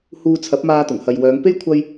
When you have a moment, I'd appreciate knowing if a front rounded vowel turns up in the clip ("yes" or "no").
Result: yes